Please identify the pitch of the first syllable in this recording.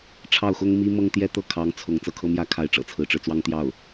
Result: falling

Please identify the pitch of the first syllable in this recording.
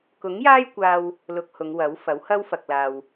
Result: rising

